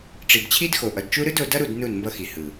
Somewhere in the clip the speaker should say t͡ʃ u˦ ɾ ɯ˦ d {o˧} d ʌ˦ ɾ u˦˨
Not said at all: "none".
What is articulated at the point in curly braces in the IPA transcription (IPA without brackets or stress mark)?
o˧